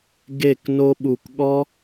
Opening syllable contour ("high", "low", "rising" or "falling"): falling